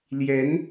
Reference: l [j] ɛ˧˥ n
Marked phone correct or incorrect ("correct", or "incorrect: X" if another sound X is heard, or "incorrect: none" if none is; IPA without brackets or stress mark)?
correct